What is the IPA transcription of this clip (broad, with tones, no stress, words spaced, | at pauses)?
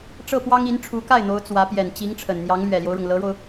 ʈ͡ʂɤ˥˩pwɑ˥ŋi˧˥n ʈ͡ʂʰu˧˥ka˥˩ɪ̯n̪o˧˥ʊ̯ t͡swä˧˥ pjɛ˨˩nt͡ɕi˧˥ŋʈ͡ʂʰə˨˩n n̪jɑ˧˥ŋlɥɛ˨˩ljo˦ʊ̯ɻʊ˩ŋ lɤ˧˥ɻo˧ʊ̯